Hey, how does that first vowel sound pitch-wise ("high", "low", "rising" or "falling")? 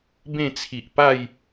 falling